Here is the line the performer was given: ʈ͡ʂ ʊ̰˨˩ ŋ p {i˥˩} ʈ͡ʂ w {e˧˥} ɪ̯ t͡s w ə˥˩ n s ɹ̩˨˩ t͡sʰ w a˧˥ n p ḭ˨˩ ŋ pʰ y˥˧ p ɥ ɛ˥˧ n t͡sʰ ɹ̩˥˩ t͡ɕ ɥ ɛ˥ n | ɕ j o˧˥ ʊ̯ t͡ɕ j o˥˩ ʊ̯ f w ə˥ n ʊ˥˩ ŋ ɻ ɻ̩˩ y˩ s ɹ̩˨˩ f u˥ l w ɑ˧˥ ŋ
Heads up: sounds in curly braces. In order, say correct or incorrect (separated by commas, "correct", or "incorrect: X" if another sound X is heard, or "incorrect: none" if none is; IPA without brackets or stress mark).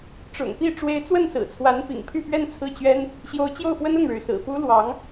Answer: correct, correct